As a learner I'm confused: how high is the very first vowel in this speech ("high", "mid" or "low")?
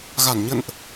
low